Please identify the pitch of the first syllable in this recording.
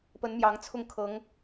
rising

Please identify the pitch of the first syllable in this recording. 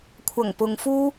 low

